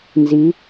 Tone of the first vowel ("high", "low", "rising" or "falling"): rising